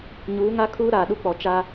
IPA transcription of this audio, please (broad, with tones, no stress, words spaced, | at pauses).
ɲuː˨˦ŋa˦kʰuː˦ ɾaː˨ɗu˦k͡pɔ˨ t͡ʃa˦